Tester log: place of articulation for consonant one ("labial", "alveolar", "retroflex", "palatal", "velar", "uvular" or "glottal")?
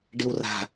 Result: retroflex